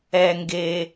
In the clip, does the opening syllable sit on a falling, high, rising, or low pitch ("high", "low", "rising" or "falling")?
low